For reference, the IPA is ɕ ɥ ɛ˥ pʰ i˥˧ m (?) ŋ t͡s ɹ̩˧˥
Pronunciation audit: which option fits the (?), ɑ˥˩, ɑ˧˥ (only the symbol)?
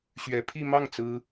ɑ˥˩